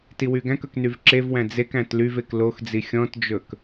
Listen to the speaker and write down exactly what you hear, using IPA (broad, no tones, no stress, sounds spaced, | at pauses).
t i w y ɡ æ̃ k ɵ k n y v ǁ e v w æ̃ d͡z e k æ̃ t l y v e k l o x d͡z i xʲ ɔ̃ t d͡ʒ ɵ k